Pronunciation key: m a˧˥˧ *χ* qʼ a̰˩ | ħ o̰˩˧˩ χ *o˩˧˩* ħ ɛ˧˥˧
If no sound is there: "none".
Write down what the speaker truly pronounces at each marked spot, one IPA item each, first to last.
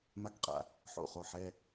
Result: k, o˩˧˩

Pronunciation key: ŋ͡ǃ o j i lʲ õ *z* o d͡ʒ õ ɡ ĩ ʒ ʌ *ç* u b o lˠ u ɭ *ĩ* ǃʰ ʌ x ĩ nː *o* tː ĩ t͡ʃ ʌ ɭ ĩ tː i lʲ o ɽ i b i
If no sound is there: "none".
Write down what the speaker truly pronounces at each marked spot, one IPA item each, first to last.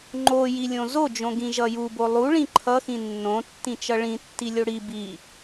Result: z, j, ĩ, õ

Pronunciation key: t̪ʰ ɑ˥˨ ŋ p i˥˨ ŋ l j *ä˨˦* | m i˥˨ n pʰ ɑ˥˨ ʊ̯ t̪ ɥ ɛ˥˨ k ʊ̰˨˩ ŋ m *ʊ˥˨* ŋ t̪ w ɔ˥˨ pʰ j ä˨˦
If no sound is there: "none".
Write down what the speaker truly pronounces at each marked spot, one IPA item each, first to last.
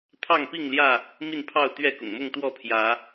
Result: ä˥˨, ʊ˥˨

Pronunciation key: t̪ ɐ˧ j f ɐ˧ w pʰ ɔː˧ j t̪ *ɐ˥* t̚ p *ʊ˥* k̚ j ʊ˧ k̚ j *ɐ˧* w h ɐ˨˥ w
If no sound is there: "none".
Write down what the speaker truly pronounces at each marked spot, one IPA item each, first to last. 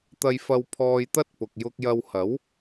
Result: ɐ˥, ʊ˨, ɐ˧

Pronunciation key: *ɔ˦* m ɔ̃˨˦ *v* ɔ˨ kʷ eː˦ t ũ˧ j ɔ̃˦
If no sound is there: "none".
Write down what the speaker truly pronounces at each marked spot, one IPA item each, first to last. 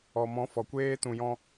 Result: ɔ˨, f

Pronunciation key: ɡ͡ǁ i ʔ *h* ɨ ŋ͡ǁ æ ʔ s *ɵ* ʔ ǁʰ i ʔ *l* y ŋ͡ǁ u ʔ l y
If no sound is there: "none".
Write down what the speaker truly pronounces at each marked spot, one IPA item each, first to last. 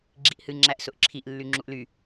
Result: h, ʊ, lː

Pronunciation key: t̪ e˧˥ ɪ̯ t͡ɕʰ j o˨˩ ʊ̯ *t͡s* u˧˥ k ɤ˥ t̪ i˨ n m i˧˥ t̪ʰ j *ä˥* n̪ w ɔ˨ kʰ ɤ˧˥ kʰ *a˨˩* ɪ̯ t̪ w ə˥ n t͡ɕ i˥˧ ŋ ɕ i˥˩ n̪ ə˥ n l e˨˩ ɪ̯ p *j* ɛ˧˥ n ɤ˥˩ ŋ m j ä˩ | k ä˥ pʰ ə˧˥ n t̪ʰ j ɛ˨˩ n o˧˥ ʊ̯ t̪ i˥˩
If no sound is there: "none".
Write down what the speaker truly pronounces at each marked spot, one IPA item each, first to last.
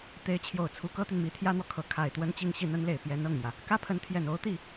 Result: t͡sʰ, ä˥, a˨˩, j

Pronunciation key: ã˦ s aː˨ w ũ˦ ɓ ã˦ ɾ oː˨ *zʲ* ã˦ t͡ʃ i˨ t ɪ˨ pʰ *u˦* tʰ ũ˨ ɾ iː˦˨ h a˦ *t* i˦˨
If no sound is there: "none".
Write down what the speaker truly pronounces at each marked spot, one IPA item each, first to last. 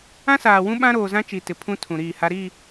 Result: z, ũ˦, ɾ

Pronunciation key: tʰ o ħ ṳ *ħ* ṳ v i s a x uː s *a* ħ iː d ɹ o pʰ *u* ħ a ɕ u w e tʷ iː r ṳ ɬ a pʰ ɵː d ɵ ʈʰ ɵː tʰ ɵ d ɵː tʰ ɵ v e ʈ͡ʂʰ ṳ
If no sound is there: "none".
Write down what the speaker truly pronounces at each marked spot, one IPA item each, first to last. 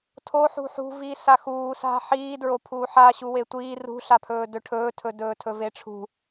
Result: ħ, a̤, uː

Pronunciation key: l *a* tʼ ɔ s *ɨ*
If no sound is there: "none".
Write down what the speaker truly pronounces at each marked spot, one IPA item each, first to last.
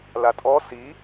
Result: a, i

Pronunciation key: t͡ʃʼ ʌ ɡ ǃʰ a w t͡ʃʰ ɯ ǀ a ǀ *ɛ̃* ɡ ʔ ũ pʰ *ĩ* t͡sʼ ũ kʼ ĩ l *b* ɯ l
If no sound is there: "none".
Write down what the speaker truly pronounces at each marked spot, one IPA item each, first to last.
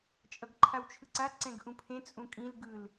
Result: ɛ̃, ẽ, ɡ

